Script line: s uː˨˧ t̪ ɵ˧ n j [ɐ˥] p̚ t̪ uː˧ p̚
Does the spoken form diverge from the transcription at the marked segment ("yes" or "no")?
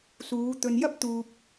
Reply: no